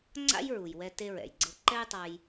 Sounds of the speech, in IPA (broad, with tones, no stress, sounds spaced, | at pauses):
ŋ͡ǀ a̰˥ j ɹ u˩ j w ɛ˧ t e˧ ɹ ɛ̰˩ j ɡ͡ǀ ɤ˧ ǃ ɛ˥ j tˤ a˧ j